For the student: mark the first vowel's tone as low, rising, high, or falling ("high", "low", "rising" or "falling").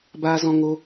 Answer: high